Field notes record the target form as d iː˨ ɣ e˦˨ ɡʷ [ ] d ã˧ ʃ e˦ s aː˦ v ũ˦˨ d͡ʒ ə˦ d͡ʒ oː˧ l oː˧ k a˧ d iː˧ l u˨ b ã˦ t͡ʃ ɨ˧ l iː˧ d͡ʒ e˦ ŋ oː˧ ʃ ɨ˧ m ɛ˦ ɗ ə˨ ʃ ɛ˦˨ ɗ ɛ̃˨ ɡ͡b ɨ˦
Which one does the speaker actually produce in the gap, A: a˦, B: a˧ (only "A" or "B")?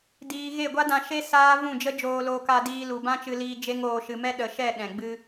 A